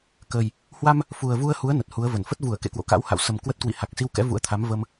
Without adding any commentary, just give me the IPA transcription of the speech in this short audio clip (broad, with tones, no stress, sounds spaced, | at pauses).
k ə˨˩ j | h w a˧ m | f u˨˩ ə̯ v u˧ ə̯ h u˨˦ ə̯ n ə˨˩ t̚ h u˨˦ ə̯ v ə˧˩ n f ə˦˥ t̚ v u˧˩ ə̯ k ḛ˧˨ k w o̰˧˨ k a̰˧˥ w h a̰˧˨ w s ə˨˩ m k w ə˦˥ t̚ k w ḭ˧˨ h a˨˩ k̚ s i˧ w k ɛ̰˧˥ v ṵ˧˥ ə̯ t̪ʰ a˨˦ m v ə˧ m